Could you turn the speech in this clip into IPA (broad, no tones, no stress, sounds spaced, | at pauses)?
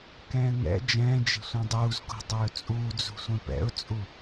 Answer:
k ɛ̃ː ŋ ɛ̰ d͡ʒ ɛ̃ː d͡ʒ e̤ sʷ ɛ̃ dˤ uː z k o̤ dˤ ɵː t͡sʼ uː d͡z ṳ sʷ ẽ p ɛ̰ ʊ̯ t͡sʼ u